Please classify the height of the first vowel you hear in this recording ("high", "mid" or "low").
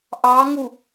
low